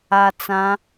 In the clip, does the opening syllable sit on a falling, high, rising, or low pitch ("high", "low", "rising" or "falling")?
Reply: low